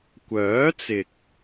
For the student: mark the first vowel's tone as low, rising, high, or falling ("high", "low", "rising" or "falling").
rising